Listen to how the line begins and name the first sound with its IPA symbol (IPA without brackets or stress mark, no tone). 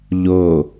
ʎ